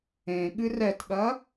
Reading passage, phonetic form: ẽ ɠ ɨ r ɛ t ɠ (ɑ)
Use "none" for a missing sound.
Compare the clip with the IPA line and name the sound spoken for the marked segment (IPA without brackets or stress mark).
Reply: ɐ